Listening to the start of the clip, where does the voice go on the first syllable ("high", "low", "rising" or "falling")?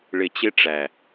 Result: low